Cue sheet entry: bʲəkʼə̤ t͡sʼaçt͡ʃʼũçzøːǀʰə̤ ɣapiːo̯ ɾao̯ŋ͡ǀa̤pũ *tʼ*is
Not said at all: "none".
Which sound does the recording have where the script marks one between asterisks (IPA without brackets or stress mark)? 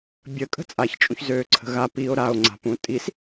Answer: tʼ